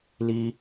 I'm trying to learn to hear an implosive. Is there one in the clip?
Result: no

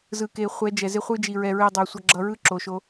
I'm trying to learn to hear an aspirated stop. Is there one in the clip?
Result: no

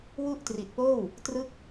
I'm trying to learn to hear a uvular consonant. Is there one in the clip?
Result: no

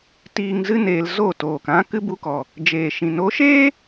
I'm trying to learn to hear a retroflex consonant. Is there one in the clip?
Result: no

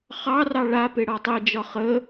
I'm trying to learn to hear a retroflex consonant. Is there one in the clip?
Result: yes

